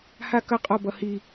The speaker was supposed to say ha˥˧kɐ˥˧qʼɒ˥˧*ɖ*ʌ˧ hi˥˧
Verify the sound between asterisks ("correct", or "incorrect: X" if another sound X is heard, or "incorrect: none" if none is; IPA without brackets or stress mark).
incorrect: b